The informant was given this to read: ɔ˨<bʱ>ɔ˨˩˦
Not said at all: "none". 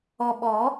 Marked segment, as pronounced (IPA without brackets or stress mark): ɓ